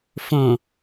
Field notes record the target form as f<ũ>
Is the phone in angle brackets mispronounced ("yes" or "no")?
yes